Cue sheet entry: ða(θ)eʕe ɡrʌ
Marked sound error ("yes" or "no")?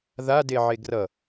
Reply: yes